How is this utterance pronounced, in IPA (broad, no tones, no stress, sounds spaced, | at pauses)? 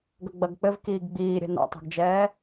ɡ ɐ ɡ͡b ɐ ɡ k͡p ɘ v k iː ɡ ɡ͡b iː ɾʲ ɛ̤ n a̰ tˤ o̤ ɡ d͡ʒ ɛː